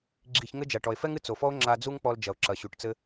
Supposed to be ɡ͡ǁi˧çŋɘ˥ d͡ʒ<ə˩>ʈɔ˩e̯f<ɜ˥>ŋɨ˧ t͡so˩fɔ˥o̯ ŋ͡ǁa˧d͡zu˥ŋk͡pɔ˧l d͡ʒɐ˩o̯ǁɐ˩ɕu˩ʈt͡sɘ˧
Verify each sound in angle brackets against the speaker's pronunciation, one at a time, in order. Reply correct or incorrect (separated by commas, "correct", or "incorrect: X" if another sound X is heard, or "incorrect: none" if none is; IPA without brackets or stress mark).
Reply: incorrect: a˩, incorrect: ɛ˥